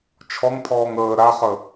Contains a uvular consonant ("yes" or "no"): yes